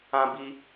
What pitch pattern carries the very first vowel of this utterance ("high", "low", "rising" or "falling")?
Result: high